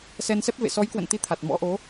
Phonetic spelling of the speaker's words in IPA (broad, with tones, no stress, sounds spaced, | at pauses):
s ɛ˧ n s ɛ˦˥ p̚ v ḛ˧˨ s ɔ˨˦ j k w ə̰˧˨ n t̪ i˨˦ t̪ʰ a˨˩ t̚ m ɔ̰˧˥ ʔ o˨˦